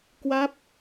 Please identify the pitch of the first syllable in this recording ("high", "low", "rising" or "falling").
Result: falling